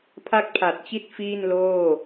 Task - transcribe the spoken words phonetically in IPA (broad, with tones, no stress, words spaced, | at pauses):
pʰa˥˩k̚pʰa˨˩t̚t͡ɕi˥˩t̚ fiː˥˩nloː˥˩